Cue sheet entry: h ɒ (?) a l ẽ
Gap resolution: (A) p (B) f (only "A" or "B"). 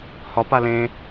A